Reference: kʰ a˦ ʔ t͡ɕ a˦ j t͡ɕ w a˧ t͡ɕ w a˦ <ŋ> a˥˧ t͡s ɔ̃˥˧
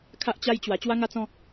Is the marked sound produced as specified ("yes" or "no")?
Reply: yes